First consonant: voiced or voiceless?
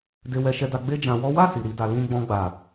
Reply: voiced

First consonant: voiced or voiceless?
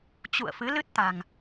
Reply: voiceless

